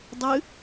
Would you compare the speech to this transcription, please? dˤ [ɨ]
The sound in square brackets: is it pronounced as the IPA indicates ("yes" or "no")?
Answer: yes